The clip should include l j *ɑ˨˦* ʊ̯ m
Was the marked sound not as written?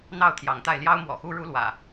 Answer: yes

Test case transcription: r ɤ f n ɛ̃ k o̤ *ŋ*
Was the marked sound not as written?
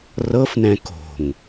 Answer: no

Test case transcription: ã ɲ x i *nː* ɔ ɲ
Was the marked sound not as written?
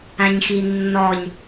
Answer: no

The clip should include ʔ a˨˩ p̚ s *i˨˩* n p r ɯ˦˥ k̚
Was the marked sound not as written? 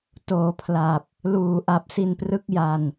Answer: yes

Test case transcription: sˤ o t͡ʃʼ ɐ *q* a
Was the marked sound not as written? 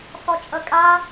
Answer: yes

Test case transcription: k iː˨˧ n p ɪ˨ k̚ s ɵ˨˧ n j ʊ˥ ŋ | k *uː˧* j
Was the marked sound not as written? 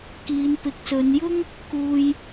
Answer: no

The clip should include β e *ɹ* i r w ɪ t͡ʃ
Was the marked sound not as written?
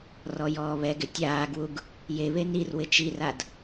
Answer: yes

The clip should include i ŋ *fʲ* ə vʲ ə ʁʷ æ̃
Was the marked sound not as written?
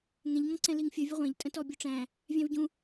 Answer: no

